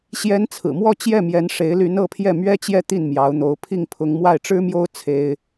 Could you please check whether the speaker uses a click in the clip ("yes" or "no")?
no